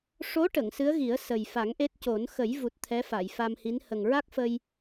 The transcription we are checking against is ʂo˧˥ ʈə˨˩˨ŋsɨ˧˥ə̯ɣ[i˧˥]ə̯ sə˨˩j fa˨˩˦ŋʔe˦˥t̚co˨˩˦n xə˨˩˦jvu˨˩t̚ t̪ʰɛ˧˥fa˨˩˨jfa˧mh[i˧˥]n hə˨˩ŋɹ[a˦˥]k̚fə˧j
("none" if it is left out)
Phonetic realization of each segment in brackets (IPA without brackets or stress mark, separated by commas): i˨˩˦, i˧˥, a˦˥